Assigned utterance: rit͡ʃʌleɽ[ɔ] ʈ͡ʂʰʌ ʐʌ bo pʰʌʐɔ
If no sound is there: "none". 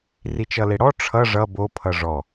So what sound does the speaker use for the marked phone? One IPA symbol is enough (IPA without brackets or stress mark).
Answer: ɔ